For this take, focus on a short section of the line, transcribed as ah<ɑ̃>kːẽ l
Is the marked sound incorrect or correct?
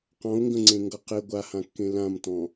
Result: incorrect